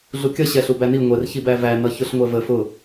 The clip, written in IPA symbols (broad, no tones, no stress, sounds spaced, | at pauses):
ɮ u kʲ ʌ ɕ ɛ ɬ u b æ n i ŋʷ ɛ r ç i b æ v æ n ʌ ç ʊ ɬ ŋʷ ɛ v ə f ʊ